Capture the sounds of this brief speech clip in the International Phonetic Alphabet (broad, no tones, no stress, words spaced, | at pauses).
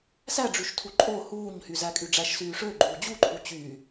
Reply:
sæɖ͡ʐyʃtʰu ǃʼo huːɲhy zækʼyɖ͡ʐæʃsyː ʂøɡ͡ǃuː d͡ʑuǃʰu t͡ɕyː